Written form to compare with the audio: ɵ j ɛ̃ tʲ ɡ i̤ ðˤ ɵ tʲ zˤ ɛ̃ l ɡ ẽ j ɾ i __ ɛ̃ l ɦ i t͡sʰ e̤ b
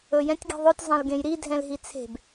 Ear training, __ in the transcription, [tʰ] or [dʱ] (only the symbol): dʱ